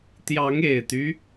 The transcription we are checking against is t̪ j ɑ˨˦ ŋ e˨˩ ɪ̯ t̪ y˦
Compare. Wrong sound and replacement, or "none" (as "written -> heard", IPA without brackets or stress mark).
none